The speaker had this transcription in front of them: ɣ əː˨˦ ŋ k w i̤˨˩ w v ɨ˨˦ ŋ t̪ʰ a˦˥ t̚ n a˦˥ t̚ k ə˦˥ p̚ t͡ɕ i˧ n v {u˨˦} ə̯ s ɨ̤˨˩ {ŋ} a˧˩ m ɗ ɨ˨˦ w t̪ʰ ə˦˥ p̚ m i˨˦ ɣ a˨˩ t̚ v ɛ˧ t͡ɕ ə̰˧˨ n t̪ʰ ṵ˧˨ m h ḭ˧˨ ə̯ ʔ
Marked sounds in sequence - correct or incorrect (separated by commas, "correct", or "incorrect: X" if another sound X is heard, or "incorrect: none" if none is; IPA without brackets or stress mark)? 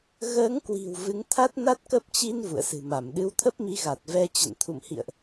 incorrect: ṵ˧˨, incorrect: m